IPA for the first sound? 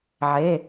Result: ʕ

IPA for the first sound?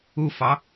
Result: u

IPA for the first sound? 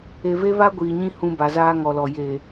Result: e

